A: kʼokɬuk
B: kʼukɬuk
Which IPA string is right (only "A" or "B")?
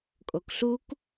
A